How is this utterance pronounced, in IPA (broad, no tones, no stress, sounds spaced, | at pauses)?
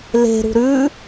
l e̤ ɾ ṳ ɾ ʉ